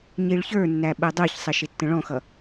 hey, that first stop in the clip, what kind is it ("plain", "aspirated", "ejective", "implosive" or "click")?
implosive